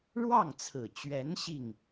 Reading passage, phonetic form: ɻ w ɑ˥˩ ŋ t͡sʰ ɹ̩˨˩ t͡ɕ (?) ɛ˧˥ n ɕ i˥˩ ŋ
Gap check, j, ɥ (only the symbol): ɥ